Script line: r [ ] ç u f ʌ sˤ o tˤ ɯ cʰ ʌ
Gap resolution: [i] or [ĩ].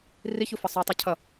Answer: i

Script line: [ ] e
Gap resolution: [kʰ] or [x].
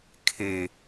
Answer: kʰ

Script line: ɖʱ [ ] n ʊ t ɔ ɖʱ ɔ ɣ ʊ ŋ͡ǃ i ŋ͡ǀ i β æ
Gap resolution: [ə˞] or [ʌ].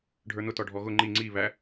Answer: ə˞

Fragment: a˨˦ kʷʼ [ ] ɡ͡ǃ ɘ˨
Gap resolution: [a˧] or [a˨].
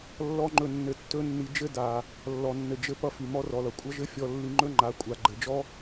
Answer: a˨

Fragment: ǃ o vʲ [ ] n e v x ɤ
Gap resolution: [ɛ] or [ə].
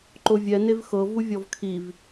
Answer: ɛ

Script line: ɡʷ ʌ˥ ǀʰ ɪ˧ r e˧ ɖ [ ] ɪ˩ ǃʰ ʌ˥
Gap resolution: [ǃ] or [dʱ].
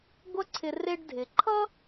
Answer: dʱ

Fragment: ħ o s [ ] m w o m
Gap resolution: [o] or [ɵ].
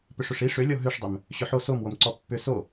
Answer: o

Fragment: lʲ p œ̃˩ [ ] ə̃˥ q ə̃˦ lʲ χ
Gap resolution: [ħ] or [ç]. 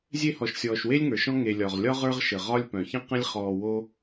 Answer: ç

